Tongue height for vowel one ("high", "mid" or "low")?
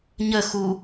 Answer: mid